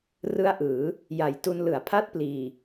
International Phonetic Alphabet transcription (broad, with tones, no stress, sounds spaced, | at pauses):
r ɯ˦˥ a̯ ʔ ɯː˩˦ | j a˨˩ j t u˧ n l ɯ˩˦ a̯ pʰ a˦˥ t̚ p l iː˨˩